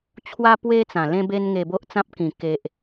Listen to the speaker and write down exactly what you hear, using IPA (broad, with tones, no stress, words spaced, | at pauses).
t͡ɕʰwa˦pwe˦t͡sã˨˩ lẽ˧be˧nŋe˨˩ bo˦ʔt͡sã˦p̚kĩ˨˩ ke˨ʔ